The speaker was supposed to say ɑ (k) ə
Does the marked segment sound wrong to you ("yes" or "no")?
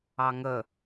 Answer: yes